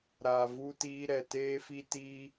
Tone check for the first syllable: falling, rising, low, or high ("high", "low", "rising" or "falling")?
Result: low